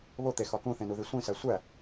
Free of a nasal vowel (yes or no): no